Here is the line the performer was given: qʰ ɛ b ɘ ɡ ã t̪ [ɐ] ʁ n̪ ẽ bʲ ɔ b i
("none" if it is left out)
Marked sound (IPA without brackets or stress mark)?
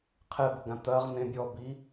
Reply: ɐ